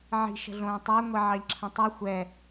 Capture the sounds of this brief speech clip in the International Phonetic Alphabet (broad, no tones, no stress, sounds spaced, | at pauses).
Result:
ʕ i̤ ʃ ə̤ ɮ õː tˤ ə˞ ŋʷ ɛ ʕ ɑ ʎ ǁʰ ə̃ tˤ i xʷ ɛ